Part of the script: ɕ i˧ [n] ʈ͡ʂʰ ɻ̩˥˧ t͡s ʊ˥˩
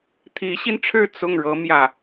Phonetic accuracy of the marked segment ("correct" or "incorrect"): correct